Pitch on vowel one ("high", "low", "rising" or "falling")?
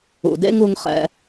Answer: low